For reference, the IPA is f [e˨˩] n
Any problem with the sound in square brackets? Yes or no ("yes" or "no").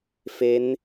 yes